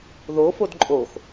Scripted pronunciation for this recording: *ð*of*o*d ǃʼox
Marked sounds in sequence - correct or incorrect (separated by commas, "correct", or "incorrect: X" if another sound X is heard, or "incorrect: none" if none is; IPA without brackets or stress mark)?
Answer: correct, correct